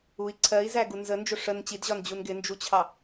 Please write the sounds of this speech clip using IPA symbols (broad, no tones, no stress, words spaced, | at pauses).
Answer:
ui̯ ǀʰɜi̯zæɡu nzənd͡ʒʊ ʂən t͡ɕidʑɒnd͡ʑun ɡɪnd͡ʒut͡ɕʰɑ